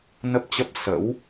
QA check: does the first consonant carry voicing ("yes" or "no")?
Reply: yes